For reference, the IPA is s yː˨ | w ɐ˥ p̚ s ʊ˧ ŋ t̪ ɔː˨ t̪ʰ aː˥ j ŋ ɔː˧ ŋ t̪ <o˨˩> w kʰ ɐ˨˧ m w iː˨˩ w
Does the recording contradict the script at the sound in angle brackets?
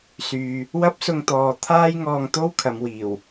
yes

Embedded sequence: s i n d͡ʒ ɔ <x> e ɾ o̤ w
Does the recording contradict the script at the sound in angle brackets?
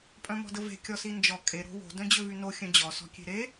yes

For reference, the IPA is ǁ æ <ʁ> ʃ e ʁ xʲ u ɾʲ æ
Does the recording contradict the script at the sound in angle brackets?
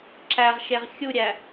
no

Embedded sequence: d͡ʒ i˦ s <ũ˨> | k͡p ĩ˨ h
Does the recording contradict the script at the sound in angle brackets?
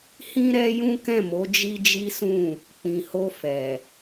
yes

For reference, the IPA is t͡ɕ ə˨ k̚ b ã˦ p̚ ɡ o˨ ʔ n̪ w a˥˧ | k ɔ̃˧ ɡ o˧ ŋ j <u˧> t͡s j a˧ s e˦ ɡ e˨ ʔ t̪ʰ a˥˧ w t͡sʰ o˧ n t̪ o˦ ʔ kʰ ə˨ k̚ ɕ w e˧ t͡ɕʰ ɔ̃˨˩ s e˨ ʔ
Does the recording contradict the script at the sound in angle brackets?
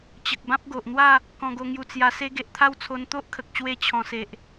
no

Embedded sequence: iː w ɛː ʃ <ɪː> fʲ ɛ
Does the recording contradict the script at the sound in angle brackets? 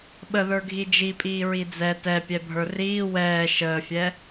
yes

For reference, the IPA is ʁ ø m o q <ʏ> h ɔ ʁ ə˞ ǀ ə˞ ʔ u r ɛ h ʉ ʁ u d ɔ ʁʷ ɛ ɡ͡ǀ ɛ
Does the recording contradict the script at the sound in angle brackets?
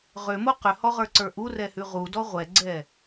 no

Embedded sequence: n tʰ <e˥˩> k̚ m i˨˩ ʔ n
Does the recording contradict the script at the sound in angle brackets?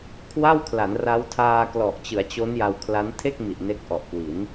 no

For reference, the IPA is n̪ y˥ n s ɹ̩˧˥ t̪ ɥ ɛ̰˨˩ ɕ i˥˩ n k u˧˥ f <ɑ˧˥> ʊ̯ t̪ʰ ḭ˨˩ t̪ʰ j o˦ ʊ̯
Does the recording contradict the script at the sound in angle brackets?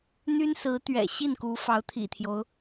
no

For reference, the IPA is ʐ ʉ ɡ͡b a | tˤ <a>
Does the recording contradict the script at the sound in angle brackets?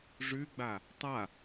no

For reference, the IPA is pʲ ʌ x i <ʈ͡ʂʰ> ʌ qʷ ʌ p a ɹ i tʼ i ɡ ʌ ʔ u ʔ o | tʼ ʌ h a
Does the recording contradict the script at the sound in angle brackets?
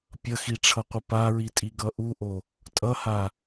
no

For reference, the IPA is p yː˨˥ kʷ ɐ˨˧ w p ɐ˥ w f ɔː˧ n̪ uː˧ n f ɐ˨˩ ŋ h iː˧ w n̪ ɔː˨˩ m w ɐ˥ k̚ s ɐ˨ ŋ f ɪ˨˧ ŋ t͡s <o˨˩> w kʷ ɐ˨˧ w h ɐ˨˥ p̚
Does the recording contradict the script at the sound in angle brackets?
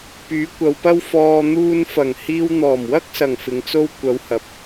yes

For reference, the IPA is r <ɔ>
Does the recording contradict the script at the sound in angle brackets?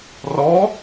no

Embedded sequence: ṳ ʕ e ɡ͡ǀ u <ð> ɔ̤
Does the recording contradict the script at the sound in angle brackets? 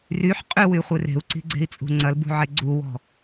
yes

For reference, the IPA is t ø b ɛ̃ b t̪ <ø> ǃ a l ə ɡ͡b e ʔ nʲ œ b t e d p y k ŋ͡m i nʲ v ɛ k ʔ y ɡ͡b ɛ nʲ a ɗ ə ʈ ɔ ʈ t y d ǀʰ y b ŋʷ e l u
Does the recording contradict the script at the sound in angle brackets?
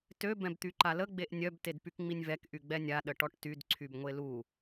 yes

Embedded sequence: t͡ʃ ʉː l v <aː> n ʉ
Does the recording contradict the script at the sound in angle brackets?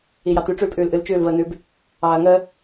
yes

